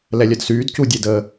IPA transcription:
l ɛ lʲ œ d s yː d c u dʲ e d ə

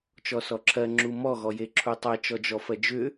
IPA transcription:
t͡ʃ ɔ s ɔ ǁʰ ɜ ŋ͡ǁ u m ɔ ɣ ɔ j e ǁʰ u tˤ ɛ t͡ʃ ɔ d͡ʒ ɔ f ɜ d͡ʒ ʏ

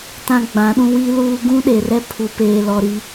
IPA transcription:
t ã˦ ɡ͡b ã˨˦ ɗ ũ˦ w i˦ l uː˦ ɡ ũ˦ ɗ e˨ r ɛ˦ pʰ u˨ p eː˨ l ɔ˨ ɾ i˦

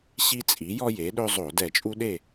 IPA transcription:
ɕ i˦ t͡sʼ i˩˥ j ɔ˦ j e˩˥ ɗ ɵ˦ zˤ o˧˩˧ d ɛ˧˩˧ t͡ʃʼ u˦ ɗ e˥˨

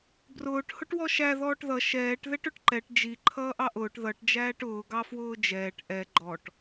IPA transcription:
b r ʊː ʈ h ʊ ʈ w ɔ ʃ æ ð ɔː ʈ ð ʌ ʃ ɛː ʈ ð ɛ ʈ ʊ ʈ ǃ ɛ ʈ d͡ʒ i ǃʰ ʌː ʔ ɑ ʔ ʊː ʈ ð ʌ ʈ d͡ʒ æː ʈ ʊː ɡ ɑ f w ʊː d͡ʒ ɛː ʈ ʔ ɛ ɡ͡ǃ ɔ ʈ

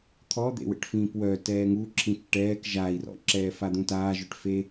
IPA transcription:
t̪ʰ ɔ d̪ ḛ w ḛ ʈ f ĩː p w œ t ɛː ŋ u ǁʰ ĩ t͡ʃ ʈ ɛː k ʒ a i̯ r ɔ̰ ǁ ɛː f a d̪ ũ t aː ʒ œ ʈ f e

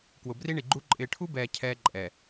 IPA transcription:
k w ʊ˨ b r i˦ ɳ i˨ ɡ͡ǃ u˦ ǃʼ ɪː˨ ʈʰ u˦ b ɛː˨ cʰ ɛː˦ ǃʼ ɛ˨

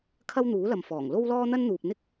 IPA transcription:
kʰ ɐ˥ w n̪ uː˨˥ l ɐ˨ m f ɔː˨˩ ŋ l o˥ w l ɔː˥ n̪ ɐ˥ n n̪ uː˨ p̚ n̪ ɪ˥ k̚

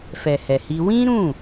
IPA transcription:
f ɛ˨ h ɛ˨ h i˧ w ĩ˦ ɾ ũ˦˨

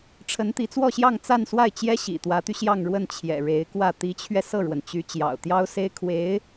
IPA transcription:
ʈ͡ʂʰ ə˧˥ n t̪ i˧˥ t͡s w ɔ˥˧ ɕ j ɑ˥˧ ŋ t͡s a˥˧ n s w a˥˩ ɪ̯ t͡ɕ j ɛ˥ ɕ ḭ˨˩ t̪ w ä˧˥ t̪ y˧ ɕ j ɑ˥˧ ŋ ɻ w ə˥˩ n t͡ɕʰ j ɛ̰˨˩ ɻ e˧˥ ɪ̯ k w ä˥˩ t̪ i˧˥ t͡ɕʰ ɥ ɛ˧ s ɤ˥˩ ɻ w ə˩ n t͡ɕ y˧˥ t͡ɕ j ɑ̰˨˩ ʊ̯ t̪ j ɑ˥ ʊ̯ s e˥ ɪ̯ kʰ w e˧˥ ɪ̯

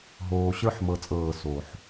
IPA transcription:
ɦ oː˨ ɕ ə˞˦ ħ m ɤ˦ t͡sʼ ɤː˦˨ s o˨ ħ

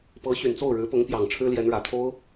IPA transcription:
p ɤ˧˥ ɕ y˨˩ n t͡s o˥˩ ʊ̯ ɻ ɻ̩˧˥ p ʊ˧˥ ŋ p j ɑ˨˩ ŋ ʈ͡ʂʰ ɻ̩˥ l j ɛ˧˥ n ɻ ä˨˩ t̪ʰ o˥ ʊ̯

